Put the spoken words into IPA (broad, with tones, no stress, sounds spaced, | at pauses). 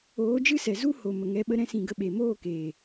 oː˨˦ d͡ʒ ɨ˦ s ɛ˨ z u˦ h o˨ m ə˨ ŋ ɛ˨˦ ɓ ə˧ ɾ ɛ̃˧ s ĩ˨ ɡ ə˧ ɓ e˨ m oː˦˨ k eː˨